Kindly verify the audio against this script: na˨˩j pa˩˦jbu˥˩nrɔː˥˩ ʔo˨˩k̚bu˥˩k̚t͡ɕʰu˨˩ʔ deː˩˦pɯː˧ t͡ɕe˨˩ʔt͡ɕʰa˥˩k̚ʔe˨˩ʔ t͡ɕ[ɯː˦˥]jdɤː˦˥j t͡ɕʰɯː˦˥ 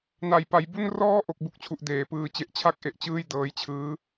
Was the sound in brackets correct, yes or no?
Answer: no